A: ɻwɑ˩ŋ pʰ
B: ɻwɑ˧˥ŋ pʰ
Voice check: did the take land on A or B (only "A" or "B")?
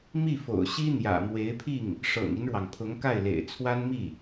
A